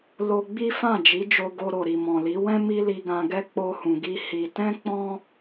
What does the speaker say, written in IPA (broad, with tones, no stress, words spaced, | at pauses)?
lo˧ɡ͡bi˦ fã˦˨d͡ʒi˨˦d͡ʒo˧ɡo˧ ɾo˨ɾi˨mɔ̃˨li˨˦ wɛ̃˦ mi˦li˧ɡã˧ɡɛ˦ k͡po˧hũ˨ɡi˧ hi˧ tɛ̃˦k͡pɔ̃˦